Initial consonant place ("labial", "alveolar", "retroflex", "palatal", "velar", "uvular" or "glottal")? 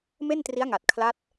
labial